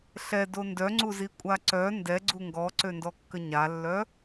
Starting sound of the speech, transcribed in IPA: ɬ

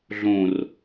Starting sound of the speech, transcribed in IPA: ɮ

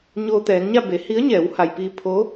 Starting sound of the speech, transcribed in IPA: ɲ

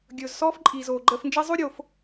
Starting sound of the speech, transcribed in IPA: ɡʲ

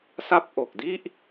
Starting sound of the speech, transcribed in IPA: s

